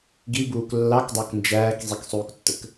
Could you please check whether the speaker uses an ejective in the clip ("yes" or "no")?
no